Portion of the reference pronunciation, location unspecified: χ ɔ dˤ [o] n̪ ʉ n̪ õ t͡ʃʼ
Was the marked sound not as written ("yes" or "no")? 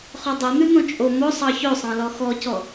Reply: no